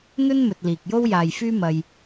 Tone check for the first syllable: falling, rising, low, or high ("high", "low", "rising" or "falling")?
high